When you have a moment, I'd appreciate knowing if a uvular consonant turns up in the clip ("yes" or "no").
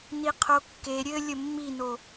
yes